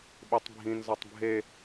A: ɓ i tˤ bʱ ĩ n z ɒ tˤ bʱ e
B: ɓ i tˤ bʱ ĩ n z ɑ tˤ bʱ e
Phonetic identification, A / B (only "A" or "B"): A